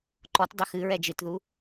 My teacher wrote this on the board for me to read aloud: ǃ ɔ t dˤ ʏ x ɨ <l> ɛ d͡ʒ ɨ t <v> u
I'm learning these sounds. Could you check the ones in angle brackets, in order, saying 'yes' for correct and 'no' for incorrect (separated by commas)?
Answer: no, no